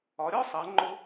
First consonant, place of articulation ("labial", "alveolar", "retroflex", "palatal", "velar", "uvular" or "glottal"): alveolar